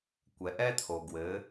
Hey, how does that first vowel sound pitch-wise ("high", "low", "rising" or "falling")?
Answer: low